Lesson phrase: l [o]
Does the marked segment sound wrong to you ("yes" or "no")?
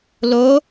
no